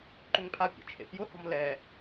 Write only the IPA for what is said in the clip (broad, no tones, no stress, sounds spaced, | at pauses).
ǃ ʏ ŋ pʰ a pʲ ḛ t͡ʃʰ ḛ f j ʊ h ɔ̤ m l ɛ